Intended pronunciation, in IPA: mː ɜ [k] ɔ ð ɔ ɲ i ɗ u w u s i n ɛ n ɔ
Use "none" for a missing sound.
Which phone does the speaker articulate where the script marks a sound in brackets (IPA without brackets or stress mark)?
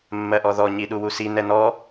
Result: ʔ